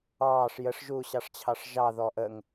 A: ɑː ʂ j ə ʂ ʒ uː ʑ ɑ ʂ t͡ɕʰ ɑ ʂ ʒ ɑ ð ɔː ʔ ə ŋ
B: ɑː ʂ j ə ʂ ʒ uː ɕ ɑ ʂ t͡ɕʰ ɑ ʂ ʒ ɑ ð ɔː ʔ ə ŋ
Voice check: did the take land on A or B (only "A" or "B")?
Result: B